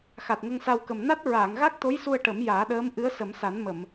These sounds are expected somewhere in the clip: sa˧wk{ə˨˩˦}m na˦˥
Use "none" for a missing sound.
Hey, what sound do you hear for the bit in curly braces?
ə˨˩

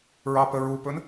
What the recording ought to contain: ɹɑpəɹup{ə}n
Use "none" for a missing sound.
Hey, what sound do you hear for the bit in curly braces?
ɵ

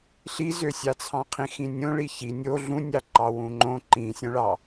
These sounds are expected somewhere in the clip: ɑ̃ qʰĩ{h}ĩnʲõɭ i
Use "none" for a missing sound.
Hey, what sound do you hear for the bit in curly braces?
x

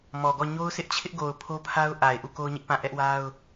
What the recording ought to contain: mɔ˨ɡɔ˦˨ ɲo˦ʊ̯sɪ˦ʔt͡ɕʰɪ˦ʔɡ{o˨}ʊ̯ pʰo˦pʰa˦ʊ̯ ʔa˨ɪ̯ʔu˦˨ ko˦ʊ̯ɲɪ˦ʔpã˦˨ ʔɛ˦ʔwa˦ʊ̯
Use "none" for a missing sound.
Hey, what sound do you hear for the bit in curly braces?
o˨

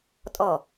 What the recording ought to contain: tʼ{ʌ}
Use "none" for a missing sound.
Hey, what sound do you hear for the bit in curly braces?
ɔ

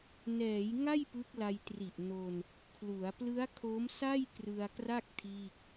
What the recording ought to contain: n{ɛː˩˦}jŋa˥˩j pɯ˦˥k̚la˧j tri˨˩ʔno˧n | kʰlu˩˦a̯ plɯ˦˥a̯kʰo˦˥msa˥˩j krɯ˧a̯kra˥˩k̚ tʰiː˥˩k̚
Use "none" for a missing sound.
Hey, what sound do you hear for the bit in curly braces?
ɛː˩˦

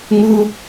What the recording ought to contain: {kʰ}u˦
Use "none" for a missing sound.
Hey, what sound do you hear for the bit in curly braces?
ŋ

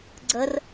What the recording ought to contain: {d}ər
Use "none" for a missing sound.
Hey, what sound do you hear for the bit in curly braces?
ɡ͡ǀ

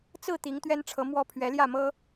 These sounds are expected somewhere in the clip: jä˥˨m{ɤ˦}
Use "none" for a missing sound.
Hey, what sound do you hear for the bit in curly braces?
ɤ˦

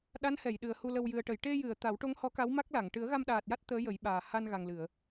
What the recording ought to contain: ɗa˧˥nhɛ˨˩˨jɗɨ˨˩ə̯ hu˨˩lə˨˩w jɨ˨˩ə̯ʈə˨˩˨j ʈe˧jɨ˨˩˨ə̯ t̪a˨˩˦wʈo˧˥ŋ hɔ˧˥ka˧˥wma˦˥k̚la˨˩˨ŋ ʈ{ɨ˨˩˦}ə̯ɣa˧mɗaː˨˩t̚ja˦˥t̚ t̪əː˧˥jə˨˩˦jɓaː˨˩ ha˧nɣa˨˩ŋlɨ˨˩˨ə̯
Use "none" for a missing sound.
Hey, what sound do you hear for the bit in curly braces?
ɨ˨˩˦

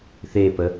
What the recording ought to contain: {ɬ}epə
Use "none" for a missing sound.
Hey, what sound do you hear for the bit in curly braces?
θ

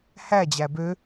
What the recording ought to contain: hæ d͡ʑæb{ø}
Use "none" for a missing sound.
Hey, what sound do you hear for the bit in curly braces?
ø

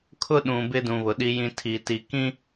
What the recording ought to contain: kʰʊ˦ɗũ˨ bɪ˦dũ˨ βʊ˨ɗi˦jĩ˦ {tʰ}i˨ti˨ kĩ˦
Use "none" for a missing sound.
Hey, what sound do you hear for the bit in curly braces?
tʰ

